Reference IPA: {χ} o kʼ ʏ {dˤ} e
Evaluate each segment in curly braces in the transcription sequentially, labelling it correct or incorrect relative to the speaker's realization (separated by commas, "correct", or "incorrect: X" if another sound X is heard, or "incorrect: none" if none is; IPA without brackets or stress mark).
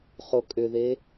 correct, incorrect: ð